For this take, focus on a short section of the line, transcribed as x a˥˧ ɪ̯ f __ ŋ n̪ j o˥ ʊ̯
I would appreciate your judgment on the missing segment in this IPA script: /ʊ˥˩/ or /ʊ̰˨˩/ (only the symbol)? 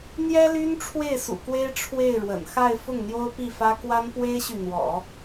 ʊ˥˩